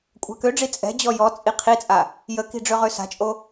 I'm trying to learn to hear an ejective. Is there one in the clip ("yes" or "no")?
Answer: yes